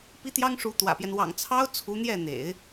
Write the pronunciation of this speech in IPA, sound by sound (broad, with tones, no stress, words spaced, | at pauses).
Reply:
pi˥t̪jɑ˥ŋʂu˧˥ t̪wä̰˨˩pjɛ˦n wɑ̰˨˩ŋ t͡sʰɑ˥ʊ̯ t͡sʰu˧˥n̪jɛ˥˩n̪ḛ˨˩˦ɪ̯